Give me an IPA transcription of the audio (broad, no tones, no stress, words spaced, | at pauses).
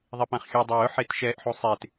ðˤepãχxʲʊ dˤawʊ ħetʃɛʔ ħusˤet